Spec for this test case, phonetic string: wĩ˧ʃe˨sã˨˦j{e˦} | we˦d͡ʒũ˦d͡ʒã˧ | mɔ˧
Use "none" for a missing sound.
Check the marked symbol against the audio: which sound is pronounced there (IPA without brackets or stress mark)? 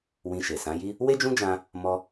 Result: i˦